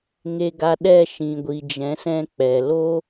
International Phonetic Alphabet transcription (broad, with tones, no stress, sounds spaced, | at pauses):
ŋ e˨ ɡ a˨ ɗ ɛ˦˨ ʃ ĩ˨ ɡʷ i˨ d͡ʒ ɛ̃˨˦ s ɛ̃˧ k͡p ɛ˨ l o˦